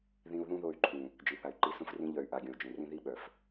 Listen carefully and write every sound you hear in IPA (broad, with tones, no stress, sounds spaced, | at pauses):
ð ĩ˦ u̯ ð ũ˦ ð o˦˨ y̯ ǃʰ ũ˨ | d͡ʒ i˨ θ a˨ y̯ ǃ i˧ s ũ˦ f r ĩ˦ ʎ œ˨ y̯ ʔ a˨ ɡʲ õ˨ u̯ d͡ʒ ẽ˨ r ĩ˦ ð i˦ ɓ œ˨ f